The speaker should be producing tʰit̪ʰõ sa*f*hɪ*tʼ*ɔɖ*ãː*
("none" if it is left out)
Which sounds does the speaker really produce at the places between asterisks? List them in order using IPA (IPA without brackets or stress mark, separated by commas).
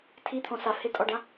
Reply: f, tʼ, ã